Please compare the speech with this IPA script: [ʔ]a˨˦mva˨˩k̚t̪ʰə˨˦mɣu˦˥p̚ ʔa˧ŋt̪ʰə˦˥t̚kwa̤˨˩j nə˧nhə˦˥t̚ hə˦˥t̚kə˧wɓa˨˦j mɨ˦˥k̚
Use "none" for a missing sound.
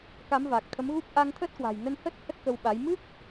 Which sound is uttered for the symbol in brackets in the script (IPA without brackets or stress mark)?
k